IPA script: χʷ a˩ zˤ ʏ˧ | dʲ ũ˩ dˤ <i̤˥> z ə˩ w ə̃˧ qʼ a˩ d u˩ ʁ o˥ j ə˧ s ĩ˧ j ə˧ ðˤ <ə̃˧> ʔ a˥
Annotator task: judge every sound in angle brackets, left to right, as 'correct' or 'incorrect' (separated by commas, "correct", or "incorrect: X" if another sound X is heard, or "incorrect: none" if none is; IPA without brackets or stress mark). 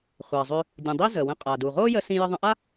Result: incorrect: i˥, correct